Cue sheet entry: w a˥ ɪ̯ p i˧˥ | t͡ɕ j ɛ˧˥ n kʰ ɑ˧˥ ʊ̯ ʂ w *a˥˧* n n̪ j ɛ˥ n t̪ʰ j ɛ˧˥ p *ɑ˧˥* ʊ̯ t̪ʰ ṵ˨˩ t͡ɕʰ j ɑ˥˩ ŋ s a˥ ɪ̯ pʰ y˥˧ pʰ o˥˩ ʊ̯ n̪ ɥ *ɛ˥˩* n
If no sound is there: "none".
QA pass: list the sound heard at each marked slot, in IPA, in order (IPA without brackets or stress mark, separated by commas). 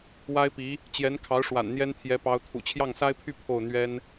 a̰˨˩, ɑ˧˥, ɛ˥